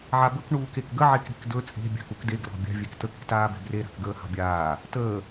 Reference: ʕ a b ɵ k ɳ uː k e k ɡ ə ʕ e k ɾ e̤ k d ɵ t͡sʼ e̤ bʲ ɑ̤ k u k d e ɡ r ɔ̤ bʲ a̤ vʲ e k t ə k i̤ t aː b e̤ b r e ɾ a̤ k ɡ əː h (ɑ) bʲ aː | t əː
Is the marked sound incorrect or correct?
incorrect